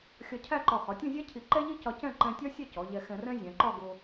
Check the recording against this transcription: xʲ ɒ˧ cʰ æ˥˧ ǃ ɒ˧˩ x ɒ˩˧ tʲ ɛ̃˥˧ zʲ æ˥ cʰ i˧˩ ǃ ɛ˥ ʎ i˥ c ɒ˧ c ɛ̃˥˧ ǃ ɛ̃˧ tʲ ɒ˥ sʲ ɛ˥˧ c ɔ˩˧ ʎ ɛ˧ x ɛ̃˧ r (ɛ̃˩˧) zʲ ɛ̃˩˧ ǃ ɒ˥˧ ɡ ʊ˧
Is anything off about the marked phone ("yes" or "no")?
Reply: yes